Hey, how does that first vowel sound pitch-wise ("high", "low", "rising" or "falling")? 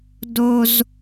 high